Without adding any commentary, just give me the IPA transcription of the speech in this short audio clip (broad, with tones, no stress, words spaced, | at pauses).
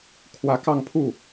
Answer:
kʰwä˧˥kɑ˥˧ŋpʰu˥˩